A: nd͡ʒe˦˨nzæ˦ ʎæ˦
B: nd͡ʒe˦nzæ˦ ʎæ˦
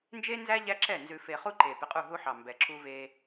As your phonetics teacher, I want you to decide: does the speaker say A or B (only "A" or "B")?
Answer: B